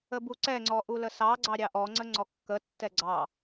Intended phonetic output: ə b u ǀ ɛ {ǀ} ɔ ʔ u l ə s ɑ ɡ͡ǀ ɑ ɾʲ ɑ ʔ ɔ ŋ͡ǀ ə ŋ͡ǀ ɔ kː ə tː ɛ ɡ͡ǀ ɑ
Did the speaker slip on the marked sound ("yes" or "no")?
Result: yes